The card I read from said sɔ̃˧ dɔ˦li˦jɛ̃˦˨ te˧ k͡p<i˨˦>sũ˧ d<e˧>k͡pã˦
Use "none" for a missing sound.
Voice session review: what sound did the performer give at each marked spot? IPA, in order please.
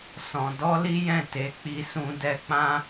i˧, ɛ˧

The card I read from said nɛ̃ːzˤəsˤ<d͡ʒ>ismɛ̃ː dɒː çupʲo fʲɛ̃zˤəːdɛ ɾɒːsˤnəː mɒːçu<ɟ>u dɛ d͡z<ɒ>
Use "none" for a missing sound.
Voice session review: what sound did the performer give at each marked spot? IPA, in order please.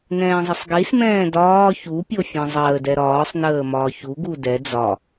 ɡ, ɡ, ɒ

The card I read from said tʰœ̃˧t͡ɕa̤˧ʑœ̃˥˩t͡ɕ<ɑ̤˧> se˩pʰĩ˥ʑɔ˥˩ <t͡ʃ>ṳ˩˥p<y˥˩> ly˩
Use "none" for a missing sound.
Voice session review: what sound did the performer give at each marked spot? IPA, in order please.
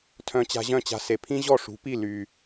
a̤˧, ʂ, i˥˩

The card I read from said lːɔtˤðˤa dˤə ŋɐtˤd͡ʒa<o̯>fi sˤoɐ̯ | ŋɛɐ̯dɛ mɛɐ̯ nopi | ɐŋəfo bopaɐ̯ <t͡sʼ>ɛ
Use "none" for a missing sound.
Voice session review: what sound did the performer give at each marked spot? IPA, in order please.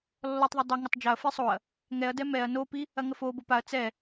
ɐ̯, t͡s

